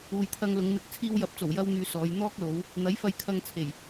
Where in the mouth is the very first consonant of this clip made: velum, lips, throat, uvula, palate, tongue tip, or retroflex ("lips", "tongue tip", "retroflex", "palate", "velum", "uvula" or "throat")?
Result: palate